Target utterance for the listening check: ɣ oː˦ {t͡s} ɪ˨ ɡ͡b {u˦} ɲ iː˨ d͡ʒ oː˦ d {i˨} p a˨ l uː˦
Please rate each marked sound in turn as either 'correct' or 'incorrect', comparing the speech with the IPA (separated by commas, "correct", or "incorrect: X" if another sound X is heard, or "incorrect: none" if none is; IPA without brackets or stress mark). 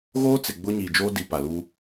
correct, incorrect: ʊ˦, correct